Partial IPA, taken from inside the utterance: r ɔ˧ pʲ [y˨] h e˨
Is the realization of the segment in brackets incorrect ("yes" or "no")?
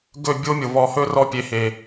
yes